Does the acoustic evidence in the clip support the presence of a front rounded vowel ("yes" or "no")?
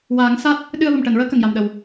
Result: no